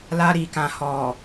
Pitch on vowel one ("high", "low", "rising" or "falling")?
low